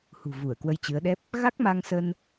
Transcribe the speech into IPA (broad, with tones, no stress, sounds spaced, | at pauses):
h ṳ˨˩ v u˧˩ ə̯ k w ə˧ j t͡ɕ ɨ˨˦ ə̯ ɗ ɛ˦˥ p̚ | ɣ a˦˥ k̚ m a˧ ŋ s ə˧ n